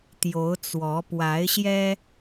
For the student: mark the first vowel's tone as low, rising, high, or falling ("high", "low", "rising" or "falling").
rising